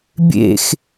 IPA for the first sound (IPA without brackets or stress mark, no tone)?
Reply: bʲ